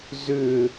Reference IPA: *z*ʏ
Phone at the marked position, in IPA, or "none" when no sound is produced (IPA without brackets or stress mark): z